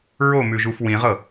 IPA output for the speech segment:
ɹ o m ʉ ʒ u f w ĩ ʁ ɤ

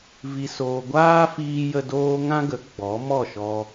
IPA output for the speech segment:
v i˧ s oː˧ ɡʷ aː˦ f iː˧ j ə˧ d oː˦ ŋ ã˦ ɡ ə˨˦ ɡ͡b ɔ˨˦ m ɔ˦˨ ʃ ɔ˧

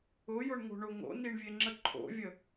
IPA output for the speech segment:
ʊ j ʊ ɳ ŋ o̤ ɳ o ŋ o̰ n i ɳ vʲ e ŋ͡ǁ ə ǃʰ o̰ vʲ ə

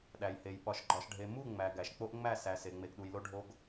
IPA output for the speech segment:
ɗ æ˨ j h e˨ j ɓ ɒ˨ ʃ ɡ͡ǃ ɒ˨ ʃ ɖʱ e˨ m u˦˨ ŋ͡m æ˨ ɡ æ˨ ʃ k͡p o˦ ʔ ŋ͡m æ˦˨ s æ˨ s e˨ ŋ͡m e˨ ɡ ɗ u˨ j l o˦ ɖʱ o˦ ɡ

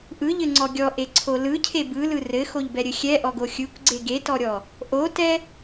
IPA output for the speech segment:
ʔ ɯ ʎ ɘ ŋ͡ǀ ɔ ɡʲ ɔ ʔ e ǀʰ o l ɯ cʰ e b ɯ l ɯ r ɘ x o ʎ b ɛ ɾʲ ɘ xʲ ɛ ʔ ɔ ɡ o xʲ ɯ kʷ ɡ͡ǀ e ɡ e t ɔ ɾʲ ɔ | ʔ o t ɛ

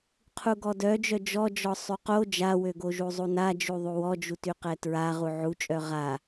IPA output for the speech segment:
qʰ u ɡ ɔ d œ d͡ʒ œ d͡ʒ ɔ d͡ʒ ɔ sˤ y q o d͡ʒ a w ø ɡ o ʒ u zˤ u n a d͡ʒ u ðˤ u w ɔ d͡ʒ u t y q ɛ t ɹ a ʁ u ʕ u t͡ʃʼ œ ʁ a

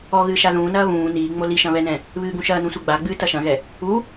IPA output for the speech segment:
ɔ ɣ ɨː ʃ a ð ũː n ɐː β ũː n iː ŋ͡m o l i ʃ ɐ̃ β ɛ n ɛ̃ | β ɨː ɡ ũ ʃ ɐː n ũ sʷ ɨ ɡ͡b a ɡ͡b ɨː t ɐ ʃ ɐ̃ ɣ ɛ | u

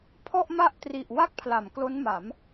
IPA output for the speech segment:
pʰ ɔ˥˩ ʔ m a˥˩ ʔ t r i˨˩ ʔ w a˥˩ k̚ pʰ l a˩˦ m k l o˦˥ n m a˩˦ m

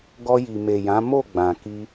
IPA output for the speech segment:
ɡ ɔ˧ j i˨ m e˨ j ã˨˦ m o˦˨ ɡ͡b ã˨ k i˧

